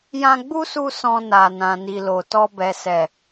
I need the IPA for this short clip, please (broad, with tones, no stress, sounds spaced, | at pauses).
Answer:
j ã˧ ɡ͡b u˦ s u˧ s ɔ̃˧ n a˨ n ã˨ n i˨ l o˨ t ɔ˧ b ɛ˨ s ɛ˨